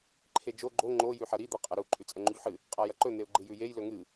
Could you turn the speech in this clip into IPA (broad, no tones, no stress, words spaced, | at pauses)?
ǃʰed͡ʒo ɡ͡ǃo ŋ͡ǃo jʉħɐɾi d̪ɐqʼɐɾu ǃʼʉt͡sʼɐŋ͡ǃuʎħɨ | qʼajɐǃɵ n̪eʊ̯ɡ͡ǃɨjʉjej lɵŋɨ